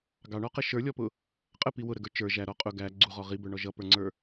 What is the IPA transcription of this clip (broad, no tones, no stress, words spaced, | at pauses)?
ɡɑɳɔqə ʃə˞lʲɔpʊ | qʼəpi wʊɾəɡə˞ t͡ʃə˞ ʒæɾɔ qʼʊ ɡæ ɡ͡ǀuʁɔ ʁibə˞ɳɔ ʒʌpə˞ŋ͡ǀə˞